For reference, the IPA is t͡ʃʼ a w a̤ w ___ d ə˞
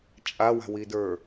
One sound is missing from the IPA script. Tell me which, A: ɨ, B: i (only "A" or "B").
B